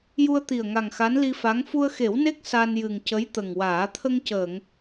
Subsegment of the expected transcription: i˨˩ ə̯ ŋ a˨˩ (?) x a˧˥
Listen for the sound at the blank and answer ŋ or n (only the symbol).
ŋ